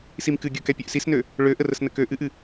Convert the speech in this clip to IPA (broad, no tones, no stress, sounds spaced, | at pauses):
s i m k ɨ ɡʲ ɤ k ɛ pʲ ø ʔ s i s n ø | ɭ ø ʔ ə r ə s n ə k ø ʔ ɨ ʔ ɨ